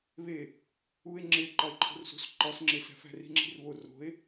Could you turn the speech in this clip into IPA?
β e | u e̯ ŋ͡ǁ e ǃ ɒ e̯ ǃʰ o̤ r s ṳ s ǃ ɒ s ŋ͡ǁ e s æ̤ f æ̤ r i̤ ŋ͡ǁ i̤ r β o r o̤ e̯

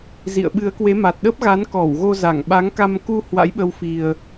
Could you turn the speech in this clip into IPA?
z ḭ˧˨ ə̯ ɓ ɨ˨˦ ə̯ k w e˨˦ m a˨˩ t̚ ɗ ə˦˥ p̚ ɣ a˨˦ n k ɔ˧˩ w ɣ o˧ z a˧˩ ŋ ɓ a˨˦ ŋ k a˧ m k u˧ h w a̰˧˥ j ɓ ə˧ w f i˨˩ ə̯

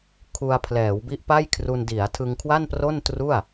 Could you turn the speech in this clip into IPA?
kʰ u˧ a̯ pʰ l ɛː˩˦ w b i˦˥ ʔ p a˥˩ j kʰ r u˧ n d i˩˦ a̯ tʰ ɯ˧ ŋ kʰ w a˥˩ n p r o˥˩ n t r u˥˩ a̯

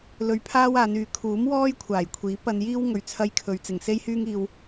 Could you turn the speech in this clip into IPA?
l ɵ˧ ɥ pʰ aː˥ w aː˨˧ n yː˨˧ kʰ uː˨˥ m w ɔː˥ j kʷʰ aː˨˩ j kʷʰ iː˨˥ p ɐ˧ n j iː˥ w ŋ ɵ˨ ɥ t͡sʰ ɐ˧ j kʰ ɵ˨ ɥ t͡s ɪ˨˩ ŋ s e˥ j h yː˥ ŋ iː˧ w

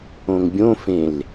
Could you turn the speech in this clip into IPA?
õ ŋ bʲ õ f ẽ l

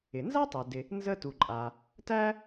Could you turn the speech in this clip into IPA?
ɪ˩ n z a˥ tˤ æ˩ d ɪ˨ | n z ə˦ t u˩ ǃʼ a˩ | t æ˥

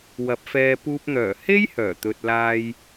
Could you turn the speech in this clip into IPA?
w ɐ˨˥ p̚ f ɛː˧ p uː˧ p̚ n̪ œː˨˩ h e˥ j h œː˨˩ t̪ ɵ˨ t̚ l aː˧ j

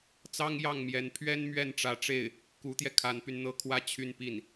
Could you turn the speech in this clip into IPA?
t͡s ɑ˥ ŋ j ɑ˥˩ ŋ m j ɛ˧˥ n pʰ ɥ ɛ˥ n m ɥ ɛ˥˩ n ʈ͡ʂ ä˧˥ ʈ͡ʂ e˥˩ ɪ̯ | k u˧˥ t̪ j ɛ˧ kʰ a˧˥ n p y˧ n n̪ ɤ˥ kʰ w ä˥ t͡ɕʰ y˥˧ n p i˥˩ n

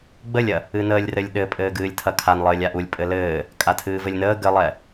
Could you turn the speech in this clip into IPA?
ɡ͡b ə lʲ ɐ | ɨ n əː lʲ r ɘ lʲ ɗ ɘ pʼ ɘː ɡ ɨː lʲ tʰ ɐ kʰ a n lˠ ɘː lʲ a ʔ u lʲ pʼ ɘ l ɘː | kʼ a tʰ ɨː v ɘ lʲ n əː ɡ ɘ lˠ ɛ

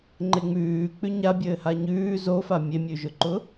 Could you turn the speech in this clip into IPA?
ŋ͡ǃ e ŋ͡m ʉː k͡p ʉ ɲ a bʲ ɘː h a ɲ ʉː z o f a mʲ e mʲ ʉ ʒ ʊ ǃ ʊ

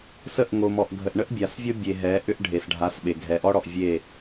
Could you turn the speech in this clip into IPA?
s ə˦˨ ʔ ŋ o˨ m ɔ˨ ʔ ɡʱ ə˨ ʔ ɳ ə˦ ʔ bʲ a˨ s vʲ o˦ bʲ e˨ ɦ ɛ˨˦ ʔ ʏ˦ ʔ ɖʱ e˨ s ɖʱ a˨˦ s ɓ e˨ ɡʱ ɛ˨ ʔ ɔ˦ ɽ ɔ˨ ʔ vʲ e˦˨

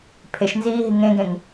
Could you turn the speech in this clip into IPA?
pʰ e ʃ n z iː ɦ i ŋ ẽ ɡ ẽ ŋ

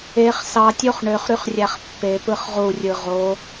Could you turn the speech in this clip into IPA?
e χ s ɑ tʲ o χ ɳ ø χ ɾ y χ rʲ æ χ pː e p ɯ χ ʁ u rʲ ɯ ʁ o

